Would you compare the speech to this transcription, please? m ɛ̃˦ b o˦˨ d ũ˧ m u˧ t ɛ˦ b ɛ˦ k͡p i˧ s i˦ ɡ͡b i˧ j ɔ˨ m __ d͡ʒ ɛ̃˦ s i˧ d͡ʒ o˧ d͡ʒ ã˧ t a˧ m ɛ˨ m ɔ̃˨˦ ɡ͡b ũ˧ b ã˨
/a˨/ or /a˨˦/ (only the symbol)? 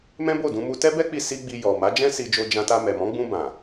a˨˦